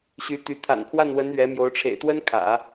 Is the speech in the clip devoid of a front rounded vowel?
no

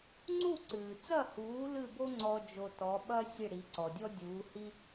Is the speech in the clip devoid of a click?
no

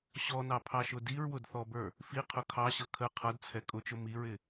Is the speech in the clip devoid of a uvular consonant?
no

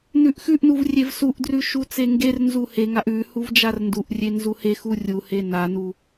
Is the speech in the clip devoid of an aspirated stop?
yes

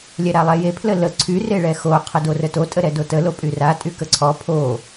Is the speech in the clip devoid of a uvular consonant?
no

